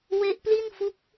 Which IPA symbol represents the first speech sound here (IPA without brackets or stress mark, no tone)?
w